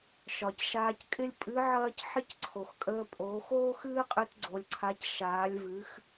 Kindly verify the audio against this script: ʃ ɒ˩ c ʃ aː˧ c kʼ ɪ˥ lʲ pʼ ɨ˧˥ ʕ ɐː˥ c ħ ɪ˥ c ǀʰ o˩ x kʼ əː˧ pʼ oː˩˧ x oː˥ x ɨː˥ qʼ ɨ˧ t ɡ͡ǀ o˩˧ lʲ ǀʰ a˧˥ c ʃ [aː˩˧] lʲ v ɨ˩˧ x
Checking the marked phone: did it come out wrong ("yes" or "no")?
no